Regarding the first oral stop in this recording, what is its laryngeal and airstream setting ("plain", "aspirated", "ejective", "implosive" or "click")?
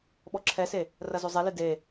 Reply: implosive